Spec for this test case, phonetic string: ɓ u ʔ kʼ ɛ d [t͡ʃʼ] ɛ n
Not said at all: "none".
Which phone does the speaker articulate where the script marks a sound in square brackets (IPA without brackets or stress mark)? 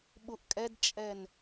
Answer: t͡ʃʼ